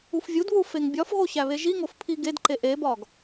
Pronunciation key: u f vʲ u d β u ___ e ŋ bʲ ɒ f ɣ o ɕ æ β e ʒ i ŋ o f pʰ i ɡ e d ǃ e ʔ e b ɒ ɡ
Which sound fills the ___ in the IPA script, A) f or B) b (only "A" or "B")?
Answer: A